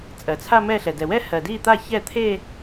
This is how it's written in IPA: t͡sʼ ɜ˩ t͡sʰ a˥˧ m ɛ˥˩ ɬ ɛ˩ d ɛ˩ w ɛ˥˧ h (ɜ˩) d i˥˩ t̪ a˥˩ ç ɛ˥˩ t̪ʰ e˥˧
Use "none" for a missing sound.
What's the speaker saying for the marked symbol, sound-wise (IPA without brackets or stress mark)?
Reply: ɜ˩